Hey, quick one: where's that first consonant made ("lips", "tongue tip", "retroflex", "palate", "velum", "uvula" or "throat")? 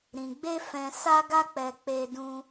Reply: tongue tip